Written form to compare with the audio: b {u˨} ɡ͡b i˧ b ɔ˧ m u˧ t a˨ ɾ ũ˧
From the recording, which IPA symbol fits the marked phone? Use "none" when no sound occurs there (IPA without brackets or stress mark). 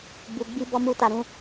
u˨